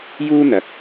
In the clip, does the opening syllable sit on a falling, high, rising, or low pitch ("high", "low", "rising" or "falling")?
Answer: high